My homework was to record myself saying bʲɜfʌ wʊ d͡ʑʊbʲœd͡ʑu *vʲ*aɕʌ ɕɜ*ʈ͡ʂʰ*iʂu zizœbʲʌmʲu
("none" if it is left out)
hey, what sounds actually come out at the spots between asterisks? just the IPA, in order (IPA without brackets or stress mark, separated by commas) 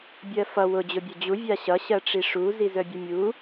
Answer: vʲ, ʈ͡ʂ